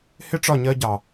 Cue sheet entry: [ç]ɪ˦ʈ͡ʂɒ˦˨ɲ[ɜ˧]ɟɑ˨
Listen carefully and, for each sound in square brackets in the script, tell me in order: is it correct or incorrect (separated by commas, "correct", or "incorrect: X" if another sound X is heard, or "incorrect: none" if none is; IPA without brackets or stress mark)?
incorrect: h, correct